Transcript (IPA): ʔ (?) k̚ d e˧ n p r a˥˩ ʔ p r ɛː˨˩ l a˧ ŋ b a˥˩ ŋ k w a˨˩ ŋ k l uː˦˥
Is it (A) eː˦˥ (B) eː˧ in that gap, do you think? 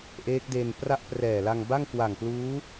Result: A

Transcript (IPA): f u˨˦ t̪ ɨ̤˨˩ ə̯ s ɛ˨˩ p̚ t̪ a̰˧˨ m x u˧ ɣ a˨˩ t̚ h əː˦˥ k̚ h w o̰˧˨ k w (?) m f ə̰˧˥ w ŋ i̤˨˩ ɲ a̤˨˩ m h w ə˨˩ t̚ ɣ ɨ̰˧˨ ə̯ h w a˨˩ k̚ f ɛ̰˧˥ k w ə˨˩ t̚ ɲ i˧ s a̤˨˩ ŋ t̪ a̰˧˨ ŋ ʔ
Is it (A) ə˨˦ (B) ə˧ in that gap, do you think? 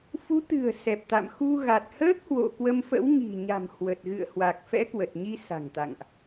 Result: B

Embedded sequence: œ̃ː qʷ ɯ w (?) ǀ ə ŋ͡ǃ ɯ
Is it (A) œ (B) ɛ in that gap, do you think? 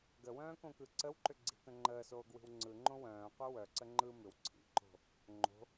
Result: A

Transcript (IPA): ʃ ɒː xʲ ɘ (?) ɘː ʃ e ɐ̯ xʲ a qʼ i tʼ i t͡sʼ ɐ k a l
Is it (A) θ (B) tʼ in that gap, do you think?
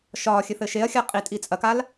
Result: A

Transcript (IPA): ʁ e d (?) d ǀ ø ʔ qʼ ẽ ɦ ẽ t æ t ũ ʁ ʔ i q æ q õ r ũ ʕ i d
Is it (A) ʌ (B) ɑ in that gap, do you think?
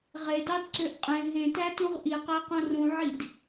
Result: B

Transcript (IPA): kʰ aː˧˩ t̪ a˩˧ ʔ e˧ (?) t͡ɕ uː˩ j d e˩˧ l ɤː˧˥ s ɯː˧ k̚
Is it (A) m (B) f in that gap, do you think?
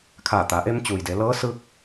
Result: A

